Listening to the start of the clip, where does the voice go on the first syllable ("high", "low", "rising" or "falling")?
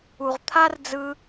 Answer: low